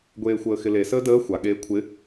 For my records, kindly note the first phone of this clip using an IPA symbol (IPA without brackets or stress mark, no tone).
ɡʷ